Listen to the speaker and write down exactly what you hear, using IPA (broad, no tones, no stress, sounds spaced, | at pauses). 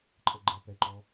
ǃʼ ə ɡ͡ǃ ɛ p ɛ ǃ ɔ